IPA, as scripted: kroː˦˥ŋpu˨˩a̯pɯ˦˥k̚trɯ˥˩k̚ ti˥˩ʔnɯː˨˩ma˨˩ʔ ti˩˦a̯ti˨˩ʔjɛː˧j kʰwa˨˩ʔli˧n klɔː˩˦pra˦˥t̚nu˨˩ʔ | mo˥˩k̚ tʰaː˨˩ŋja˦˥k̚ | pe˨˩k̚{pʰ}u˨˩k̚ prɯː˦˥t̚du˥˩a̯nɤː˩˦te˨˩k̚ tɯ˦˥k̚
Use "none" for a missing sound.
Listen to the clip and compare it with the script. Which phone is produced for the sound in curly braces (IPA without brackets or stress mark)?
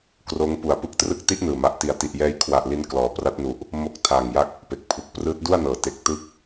pʰ